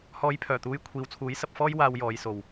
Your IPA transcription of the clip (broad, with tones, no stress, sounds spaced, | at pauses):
h ɔː˨˧ j pʰ œː˨˩ t̪ uː˨˧ j kʷʰ iː˨ w t͡sʰ uː˨˥ j s ɐ˧ p̚ f ɔː˥ j w aː˧ w j ɔː˨˧ j s o˨ w